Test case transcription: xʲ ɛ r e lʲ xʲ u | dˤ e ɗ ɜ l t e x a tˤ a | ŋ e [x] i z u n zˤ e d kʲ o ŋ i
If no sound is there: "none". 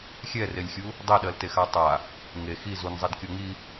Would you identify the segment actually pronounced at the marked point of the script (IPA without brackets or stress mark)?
x